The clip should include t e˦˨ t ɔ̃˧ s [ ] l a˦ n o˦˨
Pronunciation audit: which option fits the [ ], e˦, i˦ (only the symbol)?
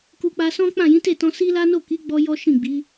i˦